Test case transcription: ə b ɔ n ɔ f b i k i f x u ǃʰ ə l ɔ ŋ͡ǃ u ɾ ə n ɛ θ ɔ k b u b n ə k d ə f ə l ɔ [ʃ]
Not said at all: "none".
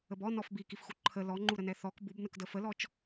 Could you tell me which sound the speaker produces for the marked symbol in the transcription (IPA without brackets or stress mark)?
t͡ʃ